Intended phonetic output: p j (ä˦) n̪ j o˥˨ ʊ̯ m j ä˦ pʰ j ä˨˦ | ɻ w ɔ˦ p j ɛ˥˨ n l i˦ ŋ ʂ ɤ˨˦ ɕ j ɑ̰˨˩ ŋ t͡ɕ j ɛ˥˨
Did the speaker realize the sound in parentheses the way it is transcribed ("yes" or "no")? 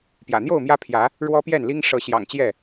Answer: no